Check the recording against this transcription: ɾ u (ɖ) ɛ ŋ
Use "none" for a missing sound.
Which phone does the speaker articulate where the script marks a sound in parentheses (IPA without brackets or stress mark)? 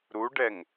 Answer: ɖ